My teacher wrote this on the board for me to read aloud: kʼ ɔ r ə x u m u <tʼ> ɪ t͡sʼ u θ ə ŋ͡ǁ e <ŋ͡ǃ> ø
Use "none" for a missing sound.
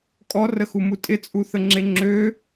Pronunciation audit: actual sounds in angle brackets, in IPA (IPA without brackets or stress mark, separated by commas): tʼ, ŋ͡ǁ